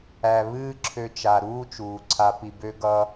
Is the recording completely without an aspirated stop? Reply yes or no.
no